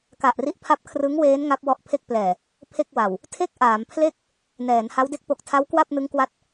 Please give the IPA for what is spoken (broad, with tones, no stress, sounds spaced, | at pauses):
k a˨˩ ʔ r i˦˥ ʔ pʰ a˦˥ p̚ kʰ r ɯ˦˥ ŋ w eː˦˥ n ŋ a˦˥ p̚ w ɔ˦˥ ʔ pʰ e˥˩ k̚ p l ɛː˨˩ | pʰ e˥˩ k̚ w a˨˩ w | tʰ e˥˩ k̚ ʔ aː˩˦ m pʰ l e˥˩ k̚ | n ɛː˩˦ n h a˦˥ w d e˦˥ k̚ p o˨˩ k̚ tʰ a˦˥ w k w a˥˩ p̚ n ɯ˦˥ ŋ k w a˦˥ t̚